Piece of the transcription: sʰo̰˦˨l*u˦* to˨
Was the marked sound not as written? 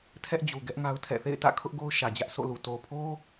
yes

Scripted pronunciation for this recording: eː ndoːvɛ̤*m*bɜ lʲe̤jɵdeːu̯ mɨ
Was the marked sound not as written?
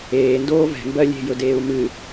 no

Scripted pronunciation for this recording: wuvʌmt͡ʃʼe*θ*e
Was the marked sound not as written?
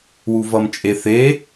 no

